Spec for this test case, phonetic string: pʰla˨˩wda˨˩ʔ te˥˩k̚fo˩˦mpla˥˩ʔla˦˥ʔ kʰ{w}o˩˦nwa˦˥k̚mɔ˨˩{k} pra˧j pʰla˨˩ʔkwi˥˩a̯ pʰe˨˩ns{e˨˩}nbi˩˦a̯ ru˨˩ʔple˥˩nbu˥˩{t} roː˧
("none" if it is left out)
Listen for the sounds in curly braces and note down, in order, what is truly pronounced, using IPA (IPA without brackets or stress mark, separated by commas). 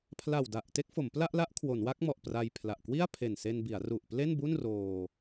w, ʔ, e˧, n